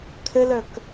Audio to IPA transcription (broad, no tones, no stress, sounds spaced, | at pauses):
tʰ ɘ l œ k